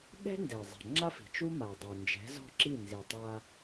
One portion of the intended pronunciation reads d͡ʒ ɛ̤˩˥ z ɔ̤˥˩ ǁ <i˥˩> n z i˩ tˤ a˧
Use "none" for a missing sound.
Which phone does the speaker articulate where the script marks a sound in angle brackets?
i˥˩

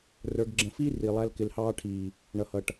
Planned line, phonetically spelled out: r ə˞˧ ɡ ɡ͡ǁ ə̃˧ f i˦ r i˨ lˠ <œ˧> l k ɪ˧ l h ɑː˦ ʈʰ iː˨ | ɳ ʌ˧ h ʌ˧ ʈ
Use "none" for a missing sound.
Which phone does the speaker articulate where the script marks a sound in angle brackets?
æ˧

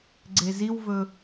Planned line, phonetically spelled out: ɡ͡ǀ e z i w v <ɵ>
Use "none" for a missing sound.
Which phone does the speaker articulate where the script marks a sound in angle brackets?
ɵ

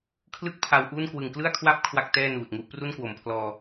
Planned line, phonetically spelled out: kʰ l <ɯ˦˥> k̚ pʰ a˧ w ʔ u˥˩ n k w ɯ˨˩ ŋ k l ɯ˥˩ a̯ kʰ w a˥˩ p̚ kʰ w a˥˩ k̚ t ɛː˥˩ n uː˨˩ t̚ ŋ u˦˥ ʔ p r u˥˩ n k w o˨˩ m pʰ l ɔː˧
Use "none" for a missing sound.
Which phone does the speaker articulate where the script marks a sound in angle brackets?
ɯ˥˩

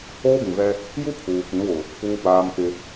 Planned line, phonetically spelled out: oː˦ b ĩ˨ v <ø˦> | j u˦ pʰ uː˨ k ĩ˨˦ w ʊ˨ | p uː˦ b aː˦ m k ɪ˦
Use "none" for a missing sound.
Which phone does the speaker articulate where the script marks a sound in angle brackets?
ɛ˦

